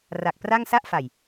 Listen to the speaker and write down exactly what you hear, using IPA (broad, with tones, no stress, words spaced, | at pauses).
ra˨˩k̚pra˥˩ŋ sa˥˩ʔfa˨˩j